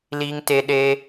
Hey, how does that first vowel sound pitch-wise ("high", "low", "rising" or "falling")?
high